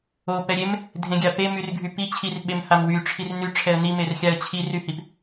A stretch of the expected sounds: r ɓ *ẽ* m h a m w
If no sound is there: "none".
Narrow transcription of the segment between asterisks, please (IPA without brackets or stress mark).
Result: e